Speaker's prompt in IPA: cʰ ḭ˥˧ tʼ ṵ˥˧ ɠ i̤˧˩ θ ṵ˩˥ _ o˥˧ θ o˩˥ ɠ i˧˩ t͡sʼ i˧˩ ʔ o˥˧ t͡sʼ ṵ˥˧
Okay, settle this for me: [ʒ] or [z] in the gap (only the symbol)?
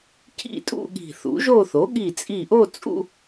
ʒ